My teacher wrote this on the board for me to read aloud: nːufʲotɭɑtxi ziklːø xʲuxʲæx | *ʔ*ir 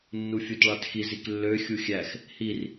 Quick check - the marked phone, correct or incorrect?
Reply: incorrect